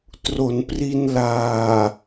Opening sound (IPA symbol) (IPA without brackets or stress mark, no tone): t